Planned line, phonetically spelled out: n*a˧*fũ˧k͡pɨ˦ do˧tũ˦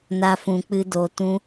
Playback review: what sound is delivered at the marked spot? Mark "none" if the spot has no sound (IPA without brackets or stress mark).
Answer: a˦